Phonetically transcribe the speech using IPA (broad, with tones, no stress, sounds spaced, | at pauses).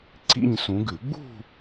ǀ ḭ˥˧ ɲ s ũ˨˦ ɡ ʉ˨˩˦ ɡ͡b ṳ˥˧